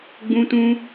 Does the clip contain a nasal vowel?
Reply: yes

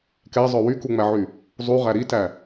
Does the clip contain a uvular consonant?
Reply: yes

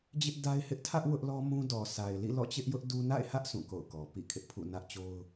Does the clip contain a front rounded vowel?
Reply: no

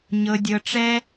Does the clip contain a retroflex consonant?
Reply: yes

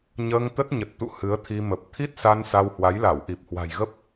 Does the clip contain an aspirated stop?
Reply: yes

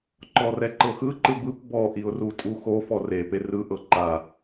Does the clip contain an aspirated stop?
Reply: no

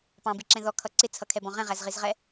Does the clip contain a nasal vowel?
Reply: yes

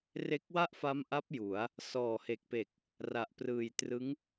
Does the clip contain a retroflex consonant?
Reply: no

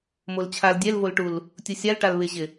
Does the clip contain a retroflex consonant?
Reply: yes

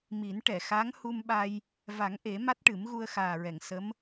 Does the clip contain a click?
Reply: no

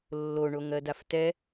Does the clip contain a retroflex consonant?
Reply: yes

